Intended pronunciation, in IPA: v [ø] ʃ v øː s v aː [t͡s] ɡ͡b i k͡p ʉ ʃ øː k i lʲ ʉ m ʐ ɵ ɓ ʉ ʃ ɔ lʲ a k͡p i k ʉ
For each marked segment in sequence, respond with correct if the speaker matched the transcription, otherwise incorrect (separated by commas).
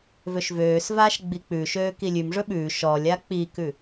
correct, incorrect